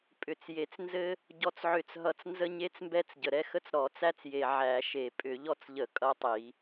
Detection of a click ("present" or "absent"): absent